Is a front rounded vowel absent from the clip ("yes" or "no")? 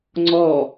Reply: yes